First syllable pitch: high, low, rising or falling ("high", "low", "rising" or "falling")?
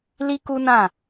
high